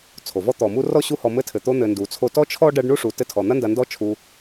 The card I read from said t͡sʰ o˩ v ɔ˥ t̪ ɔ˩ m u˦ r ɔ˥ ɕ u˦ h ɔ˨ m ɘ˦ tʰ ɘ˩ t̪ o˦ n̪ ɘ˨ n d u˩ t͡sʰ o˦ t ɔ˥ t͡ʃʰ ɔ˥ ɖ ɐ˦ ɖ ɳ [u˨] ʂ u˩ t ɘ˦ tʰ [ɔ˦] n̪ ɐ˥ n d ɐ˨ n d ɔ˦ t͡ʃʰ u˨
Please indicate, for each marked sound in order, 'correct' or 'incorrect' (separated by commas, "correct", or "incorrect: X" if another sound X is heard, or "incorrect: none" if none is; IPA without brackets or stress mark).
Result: incorrect: u˥, incorrect: ɔ˩